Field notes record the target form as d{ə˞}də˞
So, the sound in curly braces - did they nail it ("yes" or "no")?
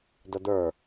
no